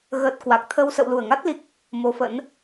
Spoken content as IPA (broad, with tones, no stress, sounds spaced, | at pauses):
ɣ əː˨˩ t̚ k w a˨˩ k̚ t̪ʰ ə˧ w s ə̰˧˨ w l u˧˩ ə̯ ŋ a˦˥ t̚ l i˨˩ k̚ | m o˨˦ f ə̰˧˥ n